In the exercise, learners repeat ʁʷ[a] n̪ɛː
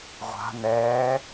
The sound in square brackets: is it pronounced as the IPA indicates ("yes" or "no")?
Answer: no